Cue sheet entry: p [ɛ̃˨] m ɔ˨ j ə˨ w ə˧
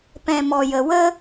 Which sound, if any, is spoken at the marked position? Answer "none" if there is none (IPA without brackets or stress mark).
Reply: ɛ̃˨